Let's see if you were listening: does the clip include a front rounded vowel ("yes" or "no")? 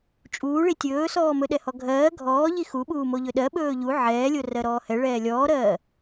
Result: no